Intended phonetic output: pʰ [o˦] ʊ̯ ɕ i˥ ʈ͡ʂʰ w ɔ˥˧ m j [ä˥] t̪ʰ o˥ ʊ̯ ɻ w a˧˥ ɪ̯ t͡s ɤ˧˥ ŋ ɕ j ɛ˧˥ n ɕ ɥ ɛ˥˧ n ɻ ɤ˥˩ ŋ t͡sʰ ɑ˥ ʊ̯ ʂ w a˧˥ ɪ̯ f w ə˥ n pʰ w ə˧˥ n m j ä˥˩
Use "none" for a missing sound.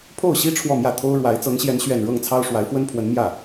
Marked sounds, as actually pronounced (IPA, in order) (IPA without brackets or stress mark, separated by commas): o˥˩, ä˥˩